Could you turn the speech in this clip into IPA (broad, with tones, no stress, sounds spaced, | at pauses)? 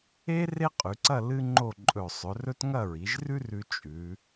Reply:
e˥ r e˥ qʼ ʉ˩˧ ǀ ɐ˥˧ l ɨ˥ ŋ͡ǃ o˥˧ ǃʼ ɵ˧˩ sˤ ɵ˩˧ r ɵ˥ t ŋ ɐ˥˧ ɹ i˩˧ ʒ r ʉ˥ r ʉ˧ t͡ʃʼ ʉ˩˧